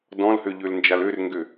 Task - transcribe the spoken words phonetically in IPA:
dɔ̃lhøʎølnd͡ʒal ørŋɡø

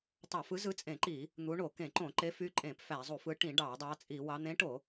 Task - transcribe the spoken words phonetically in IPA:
tˤɑ˧˩˧fɯ˨˦zɯ˨˦ t͡sʼẽ˧˩˧ǃi˧˩˧ | n̪u˨˦ɳo˧˩˧ kẽ˧˩˧ǃõ˧˩˧ǃe˨˦fy˨˦ ǃʼẽ˧˩˧pfæ˧˩˧zˤu˧˩˧fɯ˨˦ ʈĩ˧˩˧ ɖɑ˧˩˧dˤɑ˨˦t͡sʼi˧˩˧wɑ˨˦ n̪ẽ˨˦ʈo˧˩˧

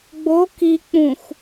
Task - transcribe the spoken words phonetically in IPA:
ɡ͡bo ki k͡pũxʷ

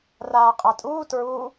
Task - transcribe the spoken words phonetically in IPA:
raːqʼatʼuː tɹu

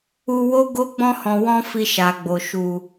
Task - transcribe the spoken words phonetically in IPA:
u˧wo˦ɡo˦ ɡ͡bɔ̃˧hɔ̃˨wɔ̃˧ fi˧ʃa˨ɡ͡bo˨ ʃu˨

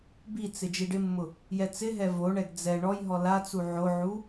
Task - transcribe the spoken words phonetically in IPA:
bit͡sɪ d͡ʒiɖɪmːʊ | jɛt͡sɪɦɛ voɳɛɡ d͡zɛ ɳɔjɦɔ lat͡su ʕoʕu

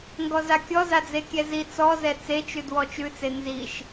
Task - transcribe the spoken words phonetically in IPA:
ŋɡɔzakʲɔza d͡zekʲɛzi t͡sɔzɛ t͡set͡ʃʉd wɔt͡ʃʉt͡se nziʃ

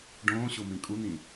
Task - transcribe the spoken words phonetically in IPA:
ɖõːɕo mĩkʼun̪ĩ

